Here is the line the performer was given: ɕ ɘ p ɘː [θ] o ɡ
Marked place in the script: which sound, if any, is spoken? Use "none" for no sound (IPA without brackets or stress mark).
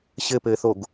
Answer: θ